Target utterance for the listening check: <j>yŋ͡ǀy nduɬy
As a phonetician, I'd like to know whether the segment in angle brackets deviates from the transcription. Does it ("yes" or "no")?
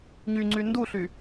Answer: yes